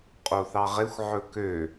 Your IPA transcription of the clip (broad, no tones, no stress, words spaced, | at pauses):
qʼoθɑʁexʷ ʕɵkø